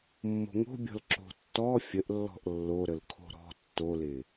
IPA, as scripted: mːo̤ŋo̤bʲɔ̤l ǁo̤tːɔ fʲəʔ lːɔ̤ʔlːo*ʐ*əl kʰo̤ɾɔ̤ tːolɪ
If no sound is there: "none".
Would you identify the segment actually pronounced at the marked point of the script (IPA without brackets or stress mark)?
ɾ